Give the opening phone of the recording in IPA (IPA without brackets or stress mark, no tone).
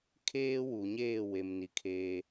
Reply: kʰ